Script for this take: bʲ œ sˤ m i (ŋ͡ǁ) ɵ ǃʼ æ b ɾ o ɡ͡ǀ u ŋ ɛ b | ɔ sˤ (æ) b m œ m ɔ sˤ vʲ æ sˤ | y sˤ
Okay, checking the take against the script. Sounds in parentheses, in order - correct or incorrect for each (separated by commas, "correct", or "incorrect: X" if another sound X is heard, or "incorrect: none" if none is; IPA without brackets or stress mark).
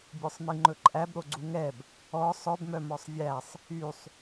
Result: incorrect: ŋ͡ǃ, incorrect: œ